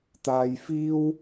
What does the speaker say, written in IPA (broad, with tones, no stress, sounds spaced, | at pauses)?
t̪ aː˨ j f iː˥ w